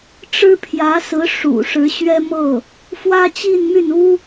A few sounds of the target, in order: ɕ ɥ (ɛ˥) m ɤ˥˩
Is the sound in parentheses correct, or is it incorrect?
correct